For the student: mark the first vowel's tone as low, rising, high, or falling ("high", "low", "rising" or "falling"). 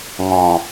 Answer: low